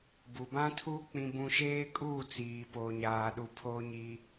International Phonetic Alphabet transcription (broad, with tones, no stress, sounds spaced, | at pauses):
b u˨ b ã˦ tʰ uː˦ k͡p ĩ˦ b ũ˦ ʃ eː˦ kʼ uː˦˨ t͡s iː˨ p oː˨ ɲ aː˨ ɗ u˨ pʰ o˦ ɲ i˦